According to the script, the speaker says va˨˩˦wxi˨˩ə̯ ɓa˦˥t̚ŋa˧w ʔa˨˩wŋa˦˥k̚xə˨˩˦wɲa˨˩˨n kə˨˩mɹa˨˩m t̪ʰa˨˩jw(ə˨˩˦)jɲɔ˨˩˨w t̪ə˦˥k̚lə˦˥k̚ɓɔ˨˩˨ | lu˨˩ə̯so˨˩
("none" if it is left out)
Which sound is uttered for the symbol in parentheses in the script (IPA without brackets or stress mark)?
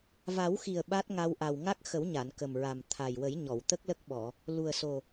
ə˨˩˦